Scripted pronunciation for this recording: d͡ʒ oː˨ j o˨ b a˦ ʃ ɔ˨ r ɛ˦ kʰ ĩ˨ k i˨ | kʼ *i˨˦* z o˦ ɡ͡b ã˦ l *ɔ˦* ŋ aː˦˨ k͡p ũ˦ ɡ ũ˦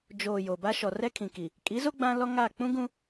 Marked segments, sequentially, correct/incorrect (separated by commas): correct, correct